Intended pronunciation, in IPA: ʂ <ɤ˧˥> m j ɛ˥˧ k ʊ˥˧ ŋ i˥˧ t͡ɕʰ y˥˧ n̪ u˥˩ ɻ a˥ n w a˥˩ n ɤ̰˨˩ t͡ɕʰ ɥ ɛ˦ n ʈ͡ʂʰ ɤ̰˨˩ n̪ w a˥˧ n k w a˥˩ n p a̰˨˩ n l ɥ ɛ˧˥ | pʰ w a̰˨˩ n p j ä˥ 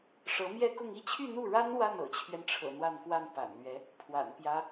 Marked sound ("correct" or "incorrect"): correct